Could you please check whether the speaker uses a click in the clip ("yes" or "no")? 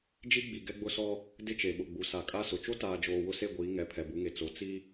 no